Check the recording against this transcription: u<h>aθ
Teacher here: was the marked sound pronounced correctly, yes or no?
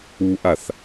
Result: no